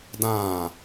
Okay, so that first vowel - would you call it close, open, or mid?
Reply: open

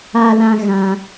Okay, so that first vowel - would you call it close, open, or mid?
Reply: open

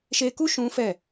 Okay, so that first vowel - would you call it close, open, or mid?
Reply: mid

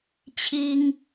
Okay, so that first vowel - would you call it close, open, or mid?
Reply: close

